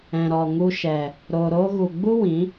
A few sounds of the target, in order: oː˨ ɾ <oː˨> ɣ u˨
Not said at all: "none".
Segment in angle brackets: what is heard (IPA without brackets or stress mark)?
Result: oː˧